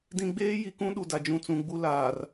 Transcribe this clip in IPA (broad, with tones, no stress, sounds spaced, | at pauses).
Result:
d ĩ˨ ɡ͡b eː˦ j i˨ k ũ˦ ɗ u˨ d a˨ d͡ʒ ũ˨ t͡s ũ˨ ɡ͡b u˦ l aː˨ r